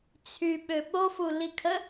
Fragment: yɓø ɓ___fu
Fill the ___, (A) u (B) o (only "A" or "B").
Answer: B